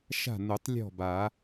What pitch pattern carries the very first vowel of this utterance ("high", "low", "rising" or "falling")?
falling